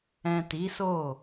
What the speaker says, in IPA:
ɛ̃˨ ti˨˦so˦˨

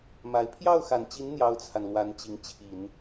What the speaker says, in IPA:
ma˧˥ɪ̯ pʰjɑ˥˩ʊ̯xa˨˩nt͡ɕi˧˥n n̪jɑ˥ʊ̯t͡sʰa˨nlwa˧˥n t͡ɕi˧˥ŋ t͡ɕʰi˨˩˦n

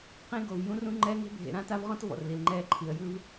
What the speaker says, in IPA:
qẽ˦ɡo˨v jũ˦rũ˦ ŋ͡ǃɛː˦ŋe̤˦ bʱḛ˨ɾã˦ ta˦vʁɔ̃˦tvɔ̰˨r li˨lŋ͡ǃɛː˦ǃʰi˨ə̯ jɯ˦v

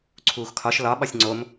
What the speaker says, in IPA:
ǀʰuːxkʰɒʃ lɒ ɓɒsʲŋ͡ǀom

